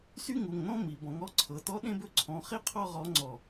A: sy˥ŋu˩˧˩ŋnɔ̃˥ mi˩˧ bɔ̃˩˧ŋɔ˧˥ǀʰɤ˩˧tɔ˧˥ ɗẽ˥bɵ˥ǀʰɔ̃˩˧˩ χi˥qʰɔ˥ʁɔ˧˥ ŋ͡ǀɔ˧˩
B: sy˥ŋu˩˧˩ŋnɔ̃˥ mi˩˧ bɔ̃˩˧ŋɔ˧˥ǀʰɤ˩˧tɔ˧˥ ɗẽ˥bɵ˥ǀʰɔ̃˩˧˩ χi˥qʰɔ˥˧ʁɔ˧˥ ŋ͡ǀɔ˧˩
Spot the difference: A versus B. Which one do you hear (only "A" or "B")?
B